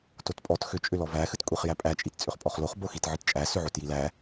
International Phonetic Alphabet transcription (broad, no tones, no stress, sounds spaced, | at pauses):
t o t pʼ ɔ t x ʏ t͡ʃʼ ʏ l ɔ v æ x ɨ t kʷʼ i χ j æ pʼ æ t͡ʃʼ i t t͡sʼ ʏ χ pʼ ɔ χ l o χ b o x i t ʕ ɨ t t͡ʃʼ æ s ʏ ʕ o t j i l æ